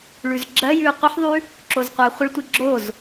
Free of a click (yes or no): no